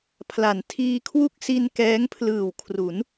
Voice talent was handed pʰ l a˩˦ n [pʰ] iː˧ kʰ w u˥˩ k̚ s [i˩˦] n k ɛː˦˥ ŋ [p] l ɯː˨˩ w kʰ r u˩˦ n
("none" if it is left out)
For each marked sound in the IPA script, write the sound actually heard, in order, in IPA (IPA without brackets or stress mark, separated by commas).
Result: tʰ, i˧, pʰ